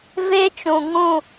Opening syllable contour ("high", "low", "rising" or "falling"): high